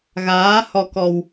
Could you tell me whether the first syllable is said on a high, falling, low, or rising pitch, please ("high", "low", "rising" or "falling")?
rising